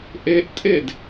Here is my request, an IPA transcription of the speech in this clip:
ʔeʔtʼed

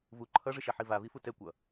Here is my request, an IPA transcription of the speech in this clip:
vu ǃʰʌʐɯʃɛħi vavifu tɛ kʷʌ

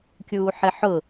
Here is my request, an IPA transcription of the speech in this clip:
kʲuːħɪħʊ

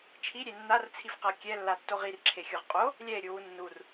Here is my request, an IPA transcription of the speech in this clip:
t͡ʃʰiɾʲe nːart͡sʰifqa kʲɛlːatːoʁ irǁʰexʲoʁ qʼo | lʲɛe̯ɾʲuwu nːur

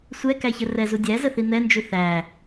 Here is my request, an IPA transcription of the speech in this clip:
sʷɛkæçə rɛzu dʲæzəθi n̪ɛnd͡ʒu θæ

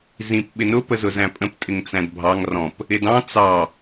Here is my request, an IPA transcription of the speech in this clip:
zĩp ɓɪnʊ pəzʊzæ̃pʼə̃p tʼɪŋt͡sæ̃dbʱɑŋ rɔ̃p | ɪdɑ̃ t͡sɑ

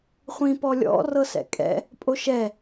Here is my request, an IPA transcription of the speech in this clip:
χʷĩpɔlʲɔ̰ rɤsɛ̰kʼɛ̰ | pʼoʃɛ

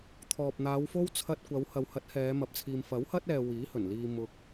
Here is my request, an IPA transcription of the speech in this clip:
t̪ʰɔː˨p̚n̪aː˨˧wfo˥w t͡sʰɐ˧t̚kʷɐ˨˧w hɐ˨whɐ˨˥t̚ hɛː˨˧mɐ˨p̚t͡sʰiː˨m fɐ˨˥whɐ˥t̚ ɛː˨ wiː˨˥hɵ˨˩n liː˧ mʊ˧k̚

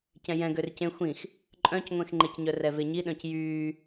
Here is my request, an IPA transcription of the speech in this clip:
cɛ̃jɛ̃ ɡørcẽ xʷĩx | ǃʼœ̃cŋʷẽxŋ͡ǃecɲœ rɛveɲi ɗœ̃cjyː

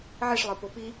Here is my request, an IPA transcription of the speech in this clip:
ʕiʂlˠə˞po pi

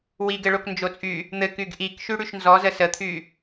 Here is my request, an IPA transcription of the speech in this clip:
wiɡɘɭok nd͡ʒot͡sʼy | n̪ɘkyɡ ʔikʃy ɽyʃnzɔzə sət̪ʰy

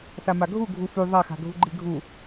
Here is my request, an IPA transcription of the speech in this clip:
samaɡʱu ɡʱufy ðˤaxa̤ɡʱuɡ͡ǃi ɡʱu

